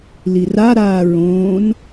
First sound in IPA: l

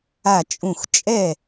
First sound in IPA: a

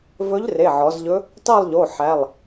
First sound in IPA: v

